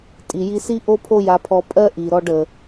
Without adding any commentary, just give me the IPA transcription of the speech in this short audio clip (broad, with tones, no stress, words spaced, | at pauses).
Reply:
tʼi˩ji˧si˥ ʔo˥pʰo˥ja˧pʰɔ˧ pʼɜ˥ʔi˩ ɾɔ˧ɖə˩